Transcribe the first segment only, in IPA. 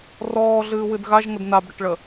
r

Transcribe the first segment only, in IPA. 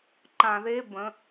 ǃ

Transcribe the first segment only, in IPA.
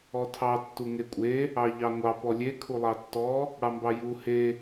ɔ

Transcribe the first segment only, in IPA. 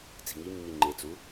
t͡s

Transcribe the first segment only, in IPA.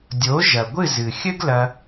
dʲ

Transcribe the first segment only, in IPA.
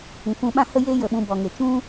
ĩ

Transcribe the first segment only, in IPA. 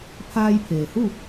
pʰ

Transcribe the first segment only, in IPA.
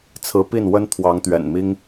t͡sʰ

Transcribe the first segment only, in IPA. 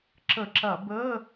ǁ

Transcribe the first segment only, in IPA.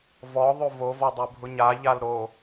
v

